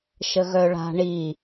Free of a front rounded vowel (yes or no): no